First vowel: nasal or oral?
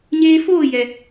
oral